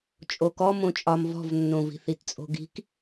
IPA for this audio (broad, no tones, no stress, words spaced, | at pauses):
t͡ʃʼokɔ mõt͡ʃʼɒm vɔ̤vnːõvi̤θ itt͡sʼo̤ɡi̤k